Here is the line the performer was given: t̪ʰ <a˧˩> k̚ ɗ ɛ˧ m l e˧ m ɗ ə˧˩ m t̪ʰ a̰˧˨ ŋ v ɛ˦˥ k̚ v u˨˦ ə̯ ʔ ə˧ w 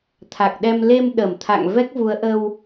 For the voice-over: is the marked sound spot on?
no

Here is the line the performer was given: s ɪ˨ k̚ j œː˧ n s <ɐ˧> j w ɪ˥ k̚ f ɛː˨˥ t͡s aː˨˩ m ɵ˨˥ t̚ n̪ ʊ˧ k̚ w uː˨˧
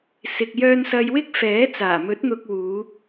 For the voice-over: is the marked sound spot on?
yes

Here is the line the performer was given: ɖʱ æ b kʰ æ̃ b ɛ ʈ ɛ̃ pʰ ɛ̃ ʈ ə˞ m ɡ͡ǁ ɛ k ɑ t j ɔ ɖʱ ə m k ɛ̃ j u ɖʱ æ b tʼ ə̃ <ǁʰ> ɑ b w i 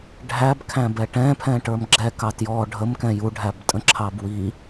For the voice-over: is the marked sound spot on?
yes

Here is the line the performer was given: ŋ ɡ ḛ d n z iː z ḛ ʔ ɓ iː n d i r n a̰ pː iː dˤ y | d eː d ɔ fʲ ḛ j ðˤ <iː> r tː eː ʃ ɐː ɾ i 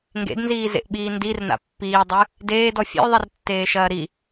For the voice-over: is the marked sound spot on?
no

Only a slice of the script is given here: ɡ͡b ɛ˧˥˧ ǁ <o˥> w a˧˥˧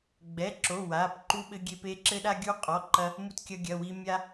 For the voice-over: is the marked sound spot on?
no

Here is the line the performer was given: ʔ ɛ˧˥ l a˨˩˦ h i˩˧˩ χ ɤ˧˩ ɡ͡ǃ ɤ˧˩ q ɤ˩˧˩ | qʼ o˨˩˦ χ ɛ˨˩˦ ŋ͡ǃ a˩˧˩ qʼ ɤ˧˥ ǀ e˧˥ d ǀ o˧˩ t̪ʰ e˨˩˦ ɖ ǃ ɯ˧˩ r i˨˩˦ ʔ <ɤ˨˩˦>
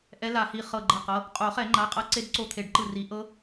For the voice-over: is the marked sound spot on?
no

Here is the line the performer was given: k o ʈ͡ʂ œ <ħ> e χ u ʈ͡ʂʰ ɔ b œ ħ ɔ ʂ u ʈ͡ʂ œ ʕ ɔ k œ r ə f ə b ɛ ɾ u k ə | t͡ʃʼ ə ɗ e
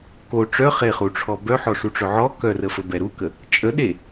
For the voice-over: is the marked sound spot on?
no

